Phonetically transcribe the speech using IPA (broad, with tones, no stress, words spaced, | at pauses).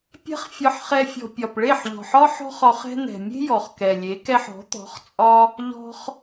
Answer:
pʲɛ̤˦χfʲɒ˧ħχɛ˧fʲɔ̤˨ pʲɒ˨pɭe˦˨ħʎɔ̤˨ħɒ˦ ħɔ̤˦χ ɒ˧χɛ̤˦ n̪ɛ̤˨mʲe̤˦ jɔ˨χkɛ˨lʲe˨˦kɛ˦ħ ɔ̤˨˦t̪ɔ̤˨˦χ t͡sʼɒ˧ | ʎɔ̤˧χ